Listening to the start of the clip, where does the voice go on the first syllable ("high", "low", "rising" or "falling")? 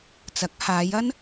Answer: rising